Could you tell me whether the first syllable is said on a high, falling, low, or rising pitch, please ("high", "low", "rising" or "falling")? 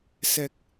low